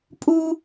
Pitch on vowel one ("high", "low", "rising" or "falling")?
high